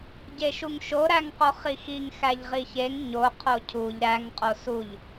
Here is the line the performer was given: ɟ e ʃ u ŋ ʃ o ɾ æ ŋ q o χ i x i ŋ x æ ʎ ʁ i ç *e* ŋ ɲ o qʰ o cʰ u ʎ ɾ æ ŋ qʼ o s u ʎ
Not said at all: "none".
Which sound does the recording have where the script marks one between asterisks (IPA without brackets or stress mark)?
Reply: e